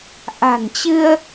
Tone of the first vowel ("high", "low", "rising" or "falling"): low